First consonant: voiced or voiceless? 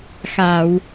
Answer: voiceless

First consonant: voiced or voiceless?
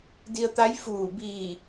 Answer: voiced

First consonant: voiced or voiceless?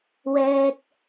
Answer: voiced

